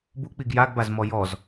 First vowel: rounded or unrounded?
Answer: rounded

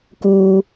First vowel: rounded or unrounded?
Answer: rounded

